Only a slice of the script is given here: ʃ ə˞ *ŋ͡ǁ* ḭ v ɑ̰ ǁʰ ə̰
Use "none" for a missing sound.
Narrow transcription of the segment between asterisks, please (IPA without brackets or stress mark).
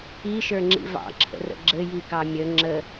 ŋ͡ǁ